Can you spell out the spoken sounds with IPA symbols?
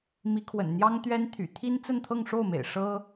m i˧˥ kʰ w ə̰˨˩ n n̪ j ɑ˥ ŋ t̪ ɥ ɛ˥ n t̪ʰ y̰˨˩ t̪ʰ i˥ n t͡s ə˥˧ n t̪ʰ ɤ˥˧ ŋ ʂ o˥˩ ʊ̯ m ḛ˨˩ ɪ̯ ʂ ɤ˥

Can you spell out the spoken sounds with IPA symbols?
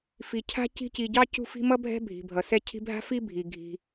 f i˨ cʰ a̤˥ c i̤˦ c i˨ ɟ ɑ˥ c ṳ˦ f i̤˦ m ʌ˥ bʱ ɛ̤˦ bʱ i̤˩ bʱ ʌ˩ s ɛ˦ cʰ i̤˦ bʱ a̤˥ f i˥ bʱ i˩ ɡʱ i̤˩

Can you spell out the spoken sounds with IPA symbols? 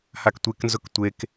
h a k tʷ e k n z ʊ k tʷ e k

